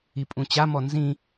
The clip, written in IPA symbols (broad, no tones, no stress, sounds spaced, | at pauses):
i pʼ ũ t͡ɕ a m ɔ n z ĩ